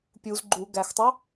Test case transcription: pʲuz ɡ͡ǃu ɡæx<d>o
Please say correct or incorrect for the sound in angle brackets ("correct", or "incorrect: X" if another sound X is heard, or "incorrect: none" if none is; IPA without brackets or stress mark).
incorrect: tˤ